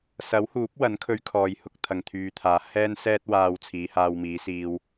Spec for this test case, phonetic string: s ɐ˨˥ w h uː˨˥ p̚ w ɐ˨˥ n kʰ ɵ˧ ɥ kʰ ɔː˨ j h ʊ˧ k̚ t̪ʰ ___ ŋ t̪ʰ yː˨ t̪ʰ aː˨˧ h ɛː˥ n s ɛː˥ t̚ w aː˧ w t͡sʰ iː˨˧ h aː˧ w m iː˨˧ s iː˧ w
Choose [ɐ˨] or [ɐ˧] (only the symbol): ɐ˨